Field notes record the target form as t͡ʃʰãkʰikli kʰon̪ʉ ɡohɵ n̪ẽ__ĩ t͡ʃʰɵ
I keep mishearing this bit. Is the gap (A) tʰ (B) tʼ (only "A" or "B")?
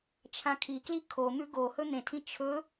A